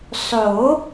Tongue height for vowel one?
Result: mid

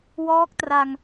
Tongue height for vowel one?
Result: mid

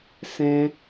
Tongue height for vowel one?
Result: mid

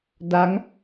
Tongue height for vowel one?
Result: low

